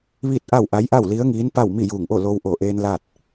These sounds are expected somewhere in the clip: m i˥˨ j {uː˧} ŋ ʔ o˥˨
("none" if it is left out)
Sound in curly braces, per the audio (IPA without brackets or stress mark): uː˧˩